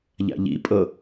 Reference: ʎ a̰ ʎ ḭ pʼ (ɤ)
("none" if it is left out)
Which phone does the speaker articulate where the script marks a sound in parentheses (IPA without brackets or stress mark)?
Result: ɤ